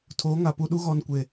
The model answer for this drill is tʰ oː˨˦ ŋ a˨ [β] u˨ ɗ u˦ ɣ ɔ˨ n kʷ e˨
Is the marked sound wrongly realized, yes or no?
yes